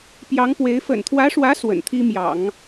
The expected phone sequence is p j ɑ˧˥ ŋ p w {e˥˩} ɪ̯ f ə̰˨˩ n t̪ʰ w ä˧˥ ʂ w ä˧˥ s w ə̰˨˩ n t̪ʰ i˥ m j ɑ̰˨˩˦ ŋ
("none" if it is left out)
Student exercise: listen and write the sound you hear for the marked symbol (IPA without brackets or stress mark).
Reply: e˧˥